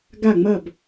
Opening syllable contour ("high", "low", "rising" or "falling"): falling